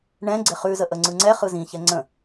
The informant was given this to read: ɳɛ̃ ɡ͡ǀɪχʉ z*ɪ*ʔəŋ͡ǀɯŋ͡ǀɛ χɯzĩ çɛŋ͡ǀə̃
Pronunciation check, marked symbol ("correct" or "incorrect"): incorrect